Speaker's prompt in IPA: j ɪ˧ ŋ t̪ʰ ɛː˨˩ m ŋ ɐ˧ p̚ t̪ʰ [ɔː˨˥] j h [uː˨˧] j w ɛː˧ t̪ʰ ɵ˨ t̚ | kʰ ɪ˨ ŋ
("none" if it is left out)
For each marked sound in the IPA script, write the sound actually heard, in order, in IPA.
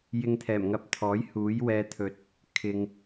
ɔː˨˥, uː˨˥

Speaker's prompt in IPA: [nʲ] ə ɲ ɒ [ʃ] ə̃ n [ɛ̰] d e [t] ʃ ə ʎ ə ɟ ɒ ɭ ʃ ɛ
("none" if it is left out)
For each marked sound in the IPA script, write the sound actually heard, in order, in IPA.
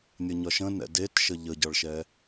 nʲ, ʃ, ɛ̰, t

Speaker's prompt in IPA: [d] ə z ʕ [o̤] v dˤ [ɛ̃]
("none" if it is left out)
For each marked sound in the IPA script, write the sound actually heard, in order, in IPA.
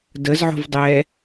d, o̤, ɛ

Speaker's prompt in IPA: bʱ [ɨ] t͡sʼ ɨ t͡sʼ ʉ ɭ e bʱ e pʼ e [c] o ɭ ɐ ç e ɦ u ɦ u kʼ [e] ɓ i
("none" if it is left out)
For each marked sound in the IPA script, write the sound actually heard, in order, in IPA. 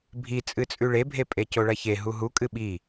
i, c, ɨ

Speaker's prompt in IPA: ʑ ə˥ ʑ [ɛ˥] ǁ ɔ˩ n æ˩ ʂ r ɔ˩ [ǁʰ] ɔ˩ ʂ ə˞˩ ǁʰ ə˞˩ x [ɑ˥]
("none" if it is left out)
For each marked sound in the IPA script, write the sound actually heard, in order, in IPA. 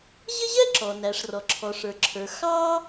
ɛ˥, ǁʰ, ɑ˥

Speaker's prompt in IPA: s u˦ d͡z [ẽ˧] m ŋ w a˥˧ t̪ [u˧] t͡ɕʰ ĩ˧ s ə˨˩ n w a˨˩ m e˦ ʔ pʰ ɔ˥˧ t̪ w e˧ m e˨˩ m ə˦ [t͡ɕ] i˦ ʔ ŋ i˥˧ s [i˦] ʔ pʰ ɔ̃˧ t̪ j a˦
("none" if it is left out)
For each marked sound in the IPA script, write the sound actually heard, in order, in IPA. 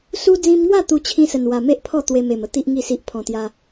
ĩ˧, u˧, t̪, i˦

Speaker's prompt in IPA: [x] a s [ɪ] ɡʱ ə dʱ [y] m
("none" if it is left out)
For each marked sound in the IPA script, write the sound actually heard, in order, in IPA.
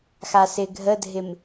x, ɪ, ɪ

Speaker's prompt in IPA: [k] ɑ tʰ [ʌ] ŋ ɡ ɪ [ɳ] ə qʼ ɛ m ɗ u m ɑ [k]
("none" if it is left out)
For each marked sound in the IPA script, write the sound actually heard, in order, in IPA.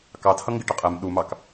k, ʌ, ʈ, k

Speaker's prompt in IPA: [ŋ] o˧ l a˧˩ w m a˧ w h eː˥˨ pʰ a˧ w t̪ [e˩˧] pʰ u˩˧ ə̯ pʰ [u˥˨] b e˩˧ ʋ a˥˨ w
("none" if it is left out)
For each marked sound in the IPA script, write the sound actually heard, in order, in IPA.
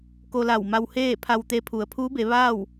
k, e˧, u˧˥

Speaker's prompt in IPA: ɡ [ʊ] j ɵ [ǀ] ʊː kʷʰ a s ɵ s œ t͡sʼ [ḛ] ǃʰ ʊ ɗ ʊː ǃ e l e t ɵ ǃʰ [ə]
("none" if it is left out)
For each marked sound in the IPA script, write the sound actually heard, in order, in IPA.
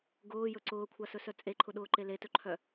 ʊː, ǀ, e, œ

